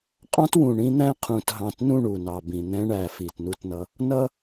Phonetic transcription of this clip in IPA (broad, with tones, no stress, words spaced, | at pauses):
qʼɑ̃˦twũ˨ɳĩ˦ n̪æ̃˦qʰũ˨t ɦɑ̃˨tnũ˦˨ ɳu˨nɑ˨bĩ˨ n̪ɛ̃˦ɳæ˨ fi˨tnu˦tnʌ˦ | nʌ˦